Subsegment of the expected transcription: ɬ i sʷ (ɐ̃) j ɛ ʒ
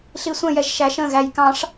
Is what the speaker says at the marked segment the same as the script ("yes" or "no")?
no